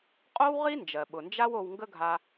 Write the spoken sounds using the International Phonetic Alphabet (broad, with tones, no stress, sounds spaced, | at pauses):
qʼ o˥ w ʁ i˥ n d͡ʒ ɜ˩ ɓ ʊ˩ n d͡ʒ a˥ w o˧ w ŋ ɡ ə˥ ɡʱ a˧